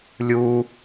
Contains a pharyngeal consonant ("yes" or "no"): no